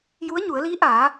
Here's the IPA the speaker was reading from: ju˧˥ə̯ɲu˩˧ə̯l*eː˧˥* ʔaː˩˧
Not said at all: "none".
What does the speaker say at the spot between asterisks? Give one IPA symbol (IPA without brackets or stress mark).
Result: iː˧˥